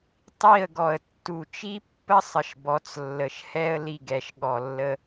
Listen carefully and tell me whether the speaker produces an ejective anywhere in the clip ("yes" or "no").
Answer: no